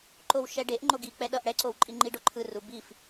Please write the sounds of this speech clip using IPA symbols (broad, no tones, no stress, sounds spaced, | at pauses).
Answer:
ǃ o w ʃ ɛ ɖ e ʔ ŋ͡ǃ o ɡ i k͡p ɛ ɗ ʌ ʔ ɽ ɛ ǀ o w ǃʼ i ŋ͡ǃ i ɖ o ǃʰ ɯ r u b i f